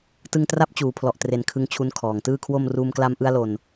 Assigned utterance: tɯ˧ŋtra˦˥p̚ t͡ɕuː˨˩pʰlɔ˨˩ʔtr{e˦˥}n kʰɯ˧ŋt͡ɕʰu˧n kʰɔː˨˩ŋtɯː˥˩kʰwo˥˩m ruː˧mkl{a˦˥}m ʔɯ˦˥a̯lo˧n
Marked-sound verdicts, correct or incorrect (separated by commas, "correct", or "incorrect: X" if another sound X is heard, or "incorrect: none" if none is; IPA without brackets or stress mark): incorrect: e˨˩, correct